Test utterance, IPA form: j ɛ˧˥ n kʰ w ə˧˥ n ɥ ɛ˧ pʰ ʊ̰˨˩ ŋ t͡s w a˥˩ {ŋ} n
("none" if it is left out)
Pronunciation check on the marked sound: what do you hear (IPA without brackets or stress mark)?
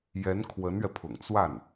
none